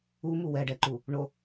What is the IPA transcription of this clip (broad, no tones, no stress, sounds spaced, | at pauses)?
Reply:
u m u w ɛ ɖ ɛ ǃ u | ɳ o